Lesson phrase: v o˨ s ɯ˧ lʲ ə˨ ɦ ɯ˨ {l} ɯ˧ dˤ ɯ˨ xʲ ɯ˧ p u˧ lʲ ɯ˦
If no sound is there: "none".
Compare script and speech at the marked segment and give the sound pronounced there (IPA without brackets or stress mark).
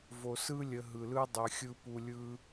l